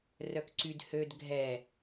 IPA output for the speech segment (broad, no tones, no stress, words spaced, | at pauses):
rœkǀyd hød ɡʱɛ